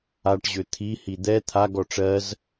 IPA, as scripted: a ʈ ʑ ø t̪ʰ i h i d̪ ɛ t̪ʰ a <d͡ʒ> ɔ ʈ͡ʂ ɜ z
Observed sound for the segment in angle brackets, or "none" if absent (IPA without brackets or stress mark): ɡ